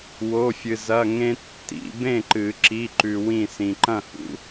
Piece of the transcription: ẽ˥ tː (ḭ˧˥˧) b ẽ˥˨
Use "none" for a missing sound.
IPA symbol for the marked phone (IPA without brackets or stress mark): ḭ˧˥˧